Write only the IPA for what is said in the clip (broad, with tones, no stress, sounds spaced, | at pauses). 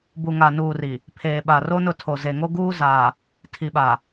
b u˨ ŋ a˨ n uː˨ r i˨ | pʰ eː˨ ɓ a˨ r oː˦ n ʊ˦˨ tʰ o˨ z e˨ ŋ o˦ ɡ uː˦ z aː˨ | tʰ i˨ ɓ aː˨